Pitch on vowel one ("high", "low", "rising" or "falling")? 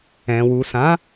low